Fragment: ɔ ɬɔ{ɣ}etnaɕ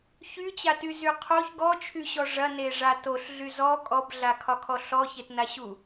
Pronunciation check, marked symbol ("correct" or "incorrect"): incorrect